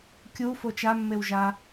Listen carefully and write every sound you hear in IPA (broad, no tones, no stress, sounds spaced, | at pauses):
kʲ u f o t͡ʃ a mː e w ʒ a